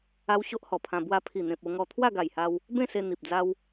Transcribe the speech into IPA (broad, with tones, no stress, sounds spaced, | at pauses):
a˦ w ɕ o˦ ʔ h ɔ˨˩ pʰ ã˧ b w a˧ pʰ i˨˩ n̪ ẽ˨ p̚ o˧ ŋ ɔ˧ t̪ʰ w a˥˧ ɡ a˨˩ j h a˧ w | b ẽ˥˧ s e˧ n̪ i˨ p̚ d͡z a˦ w